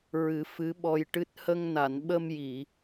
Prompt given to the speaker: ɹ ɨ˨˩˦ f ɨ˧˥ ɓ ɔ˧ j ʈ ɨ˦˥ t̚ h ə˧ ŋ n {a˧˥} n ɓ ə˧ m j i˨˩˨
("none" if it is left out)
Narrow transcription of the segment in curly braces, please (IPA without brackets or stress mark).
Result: a˨˩˨